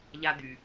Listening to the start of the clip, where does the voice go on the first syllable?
high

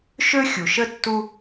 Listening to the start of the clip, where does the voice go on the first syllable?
high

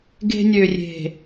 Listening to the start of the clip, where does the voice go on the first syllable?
high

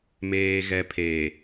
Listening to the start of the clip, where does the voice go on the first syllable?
low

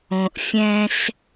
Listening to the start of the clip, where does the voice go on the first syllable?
low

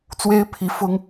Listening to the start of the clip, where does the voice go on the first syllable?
high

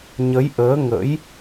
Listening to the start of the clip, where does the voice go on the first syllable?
rising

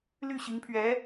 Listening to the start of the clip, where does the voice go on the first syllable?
falling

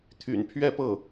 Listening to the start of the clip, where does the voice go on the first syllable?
low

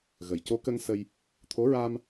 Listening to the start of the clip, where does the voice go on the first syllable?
low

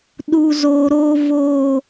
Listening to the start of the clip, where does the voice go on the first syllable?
low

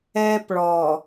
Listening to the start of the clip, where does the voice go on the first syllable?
high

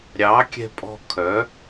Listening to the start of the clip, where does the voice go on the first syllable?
rising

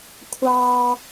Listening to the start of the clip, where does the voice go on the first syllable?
high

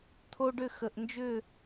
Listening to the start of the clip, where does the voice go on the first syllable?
high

